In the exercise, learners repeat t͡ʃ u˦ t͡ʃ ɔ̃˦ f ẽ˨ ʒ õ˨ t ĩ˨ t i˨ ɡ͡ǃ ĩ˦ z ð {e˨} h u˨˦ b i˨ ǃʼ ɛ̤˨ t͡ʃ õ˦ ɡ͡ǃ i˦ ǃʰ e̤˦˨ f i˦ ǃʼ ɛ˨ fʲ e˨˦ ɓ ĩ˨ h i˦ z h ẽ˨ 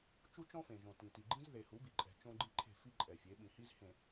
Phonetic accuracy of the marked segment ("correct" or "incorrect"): correct